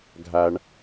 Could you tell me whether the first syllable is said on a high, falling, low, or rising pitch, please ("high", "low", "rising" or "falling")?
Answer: low